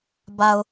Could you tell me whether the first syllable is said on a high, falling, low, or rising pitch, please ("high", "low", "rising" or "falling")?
low